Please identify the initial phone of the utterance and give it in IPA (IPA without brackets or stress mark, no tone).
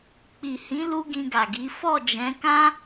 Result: k͡p